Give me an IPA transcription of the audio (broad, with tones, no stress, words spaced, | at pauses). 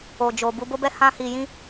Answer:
o˨d͡ʒo˨ bu˧bo˦bɛ˦ hã˦ hi˧jĩ˦